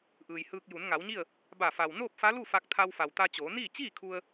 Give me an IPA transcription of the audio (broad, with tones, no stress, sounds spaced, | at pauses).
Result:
ʔ ɯː˩ j h ɯː˧ k̚ j u˩˧ n ŋ a˩˧ w ɲ i˥˨ ə̯ | b a˧˩ f a˩ w n oː˥˨ p̚ f a˧˥ l u˥˨ f a˧ k̚ t̪ʰ a˧ w f a˩ w t̪ a˧ t͡ɕ oː˩˧ n iː˥˨ t͡ɕ iː˥˨ kʰ u˧ ə̯